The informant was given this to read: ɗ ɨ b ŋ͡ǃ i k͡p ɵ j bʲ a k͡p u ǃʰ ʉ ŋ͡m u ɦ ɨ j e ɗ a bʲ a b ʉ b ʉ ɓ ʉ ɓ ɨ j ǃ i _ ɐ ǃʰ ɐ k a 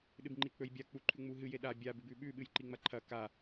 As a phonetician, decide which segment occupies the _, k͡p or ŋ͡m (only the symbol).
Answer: ŋ͡m